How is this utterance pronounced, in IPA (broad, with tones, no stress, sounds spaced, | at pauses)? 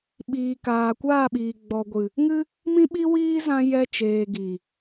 ɓ iː˨ k aː˨ kʷ aː˦˨ ɓ iː˨ ɡ͡b ɔ˨ ɡʷ ɨ˨ | ŋ ɨ˦ | m ĩ˦ ɓ i˦ w iː˦ z ã˧ j ɛ˧ t͡ʃ eː˨ ɡ i˨